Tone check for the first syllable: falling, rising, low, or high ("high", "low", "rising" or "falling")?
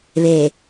low